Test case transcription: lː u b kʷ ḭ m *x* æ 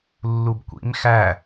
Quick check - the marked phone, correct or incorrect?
correct